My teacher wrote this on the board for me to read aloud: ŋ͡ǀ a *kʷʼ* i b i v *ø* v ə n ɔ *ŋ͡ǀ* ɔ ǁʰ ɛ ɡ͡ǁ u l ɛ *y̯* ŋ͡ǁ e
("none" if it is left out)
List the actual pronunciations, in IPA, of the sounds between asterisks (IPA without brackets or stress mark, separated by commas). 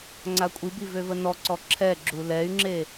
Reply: kʷʼ, ø, ǀ, y̯